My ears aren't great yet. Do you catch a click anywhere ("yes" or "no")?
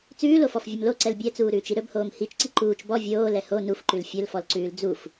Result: yes